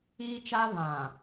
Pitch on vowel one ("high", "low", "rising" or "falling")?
high